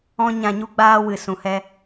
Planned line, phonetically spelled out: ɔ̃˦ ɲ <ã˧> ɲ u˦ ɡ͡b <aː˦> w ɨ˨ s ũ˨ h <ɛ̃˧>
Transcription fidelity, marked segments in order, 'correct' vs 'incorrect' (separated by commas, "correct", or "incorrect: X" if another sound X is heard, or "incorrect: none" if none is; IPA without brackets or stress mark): correct, correct, incorrect: ɛ˧